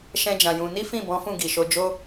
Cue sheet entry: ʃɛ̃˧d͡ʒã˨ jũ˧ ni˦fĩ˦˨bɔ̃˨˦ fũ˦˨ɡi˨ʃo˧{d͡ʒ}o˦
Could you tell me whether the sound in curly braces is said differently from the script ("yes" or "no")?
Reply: no